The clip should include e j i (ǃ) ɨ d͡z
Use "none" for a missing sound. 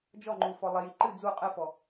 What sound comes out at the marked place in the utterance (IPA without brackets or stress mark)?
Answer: ǃ